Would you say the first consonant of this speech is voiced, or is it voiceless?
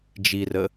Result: voiced